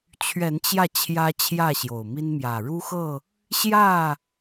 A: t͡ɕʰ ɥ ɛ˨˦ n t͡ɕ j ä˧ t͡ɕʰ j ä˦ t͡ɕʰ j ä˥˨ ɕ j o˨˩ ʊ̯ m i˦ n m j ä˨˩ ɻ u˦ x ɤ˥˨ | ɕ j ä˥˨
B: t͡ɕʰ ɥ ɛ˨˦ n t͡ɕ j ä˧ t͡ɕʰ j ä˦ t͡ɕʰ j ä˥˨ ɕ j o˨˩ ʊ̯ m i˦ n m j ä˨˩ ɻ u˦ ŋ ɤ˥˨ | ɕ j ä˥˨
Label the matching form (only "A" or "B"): A